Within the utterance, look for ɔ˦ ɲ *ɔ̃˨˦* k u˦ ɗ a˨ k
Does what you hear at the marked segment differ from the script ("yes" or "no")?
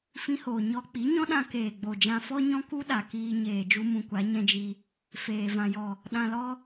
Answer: yes